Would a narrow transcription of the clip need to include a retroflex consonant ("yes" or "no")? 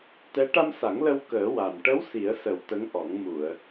yes